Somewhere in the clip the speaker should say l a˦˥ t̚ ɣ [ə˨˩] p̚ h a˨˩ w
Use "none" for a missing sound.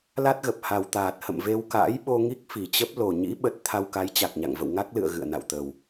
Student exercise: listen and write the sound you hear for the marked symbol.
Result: ə˨˩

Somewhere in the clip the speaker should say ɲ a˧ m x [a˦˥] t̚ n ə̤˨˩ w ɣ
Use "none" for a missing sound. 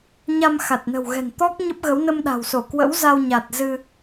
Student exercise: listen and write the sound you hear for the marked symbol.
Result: a˨˩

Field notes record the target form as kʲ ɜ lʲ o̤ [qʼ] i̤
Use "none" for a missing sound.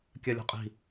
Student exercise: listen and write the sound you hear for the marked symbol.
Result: qʼ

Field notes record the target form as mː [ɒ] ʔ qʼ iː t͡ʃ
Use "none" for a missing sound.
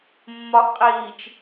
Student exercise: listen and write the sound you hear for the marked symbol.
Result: ɒ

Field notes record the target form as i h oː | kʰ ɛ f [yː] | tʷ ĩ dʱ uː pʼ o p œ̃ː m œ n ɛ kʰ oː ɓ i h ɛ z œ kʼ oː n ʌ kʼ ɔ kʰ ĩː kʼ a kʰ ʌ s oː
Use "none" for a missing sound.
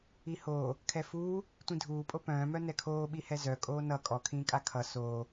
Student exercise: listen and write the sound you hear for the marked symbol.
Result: uː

